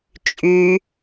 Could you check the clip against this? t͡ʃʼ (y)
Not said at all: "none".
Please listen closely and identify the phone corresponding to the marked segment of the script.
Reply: y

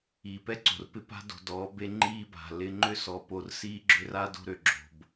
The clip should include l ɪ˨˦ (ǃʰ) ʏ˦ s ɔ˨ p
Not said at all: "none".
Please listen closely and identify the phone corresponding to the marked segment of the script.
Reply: ŋ͡ǃ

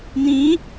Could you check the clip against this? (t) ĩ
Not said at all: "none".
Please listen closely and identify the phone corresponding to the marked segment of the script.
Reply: n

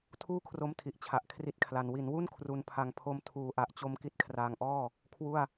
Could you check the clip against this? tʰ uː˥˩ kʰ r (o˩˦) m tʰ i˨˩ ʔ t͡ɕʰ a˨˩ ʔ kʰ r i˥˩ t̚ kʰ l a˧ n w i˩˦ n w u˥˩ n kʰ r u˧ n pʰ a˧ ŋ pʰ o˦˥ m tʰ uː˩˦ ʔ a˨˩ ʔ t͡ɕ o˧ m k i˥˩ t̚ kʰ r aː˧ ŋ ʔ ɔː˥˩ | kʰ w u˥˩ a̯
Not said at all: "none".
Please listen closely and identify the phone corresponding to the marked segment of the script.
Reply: o˦˥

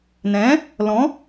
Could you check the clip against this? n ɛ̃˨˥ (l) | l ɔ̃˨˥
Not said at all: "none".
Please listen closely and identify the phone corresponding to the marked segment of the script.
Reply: none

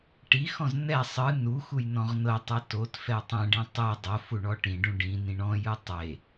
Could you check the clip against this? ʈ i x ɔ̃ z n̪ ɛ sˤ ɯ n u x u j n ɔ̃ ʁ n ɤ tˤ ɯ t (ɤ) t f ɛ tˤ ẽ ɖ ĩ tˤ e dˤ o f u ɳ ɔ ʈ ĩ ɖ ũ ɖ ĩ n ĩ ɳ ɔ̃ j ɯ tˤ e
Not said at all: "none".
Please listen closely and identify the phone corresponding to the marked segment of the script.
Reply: o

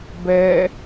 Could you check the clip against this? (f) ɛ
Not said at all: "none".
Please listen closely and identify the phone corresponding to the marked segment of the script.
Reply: b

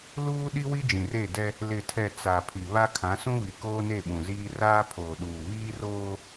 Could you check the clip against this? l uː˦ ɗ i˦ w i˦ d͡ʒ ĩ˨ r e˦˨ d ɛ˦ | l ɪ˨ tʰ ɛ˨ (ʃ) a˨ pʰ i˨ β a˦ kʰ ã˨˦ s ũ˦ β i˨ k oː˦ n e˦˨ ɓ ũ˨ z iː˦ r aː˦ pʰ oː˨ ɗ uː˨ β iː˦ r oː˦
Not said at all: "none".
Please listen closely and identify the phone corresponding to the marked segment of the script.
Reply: t͡s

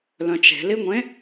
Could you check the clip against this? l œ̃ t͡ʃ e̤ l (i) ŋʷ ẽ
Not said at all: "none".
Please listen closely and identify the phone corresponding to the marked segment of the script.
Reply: i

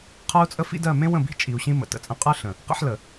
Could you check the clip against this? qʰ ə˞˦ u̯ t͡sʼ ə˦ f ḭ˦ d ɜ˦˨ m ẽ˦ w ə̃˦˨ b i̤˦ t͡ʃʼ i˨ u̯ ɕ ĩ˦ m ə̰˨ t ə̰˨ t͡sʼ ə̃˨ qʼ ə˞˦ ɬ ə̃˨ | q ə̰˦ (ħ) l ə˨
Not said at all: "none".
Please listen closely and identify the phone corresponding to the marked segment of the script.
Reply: ħ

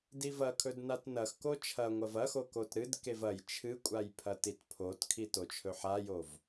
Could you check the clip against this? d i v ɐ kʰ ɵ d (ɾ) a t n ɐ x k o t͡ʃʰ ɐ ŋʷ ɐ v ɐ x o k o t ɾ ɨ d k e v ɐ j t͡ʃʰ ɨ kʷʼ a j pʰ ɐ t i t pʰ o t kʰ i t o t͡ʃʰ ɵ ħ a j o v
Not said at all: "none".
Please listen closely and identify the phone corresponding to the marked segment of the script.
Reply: n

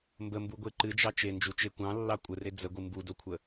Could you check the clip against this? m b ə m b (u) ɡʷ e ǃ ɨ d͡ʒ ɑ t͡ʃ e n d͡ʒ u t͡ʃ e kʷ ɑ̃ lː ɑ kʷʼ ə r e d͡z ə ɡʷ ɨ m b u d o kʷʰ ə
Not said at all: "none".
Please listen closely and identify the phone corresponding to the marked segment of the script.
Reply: u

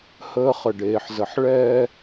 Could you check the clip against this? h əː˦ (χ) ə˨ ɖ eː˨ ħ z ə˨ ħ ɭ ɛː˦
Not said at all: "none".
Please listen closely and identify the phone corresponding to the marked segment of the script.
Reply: χ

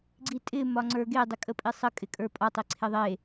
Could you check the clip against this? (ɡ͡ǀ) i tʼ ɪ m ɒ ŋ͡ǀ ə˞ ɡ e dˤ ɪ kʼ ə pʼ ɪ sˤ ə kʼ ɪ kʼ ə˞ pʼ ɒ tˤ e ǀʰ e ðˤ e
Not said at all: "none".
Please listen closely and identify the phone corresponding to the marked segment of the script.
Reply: ɡ͡ǀ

